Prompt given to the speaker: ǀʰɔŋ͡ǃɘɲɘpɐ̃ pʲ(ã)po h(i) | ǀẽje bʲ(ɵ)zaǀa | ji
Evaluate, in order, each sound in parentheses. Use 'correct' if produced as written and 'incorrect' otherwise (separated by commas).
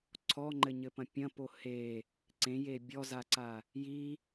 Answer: incorrect, incorrect, incorrect